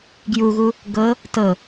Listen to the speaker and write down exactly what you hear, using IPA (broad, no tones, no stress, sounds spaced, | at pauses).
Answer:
ɡ j u ɣ u | ɡ ɤ | t ɤ